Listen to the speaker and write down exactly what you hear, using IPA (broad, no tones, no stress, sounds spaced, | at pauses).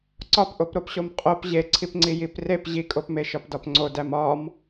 ǀ ɒ p ʔ o p ɾ o p ɕ o m qʼ o p ʑ e ǀʰ i p ŋ͡ǀ i j i p r e p ʑ i kʼ o p m e ʃ ɒ p d ɒ p ŋ͡ǀ o d æ m ɒ m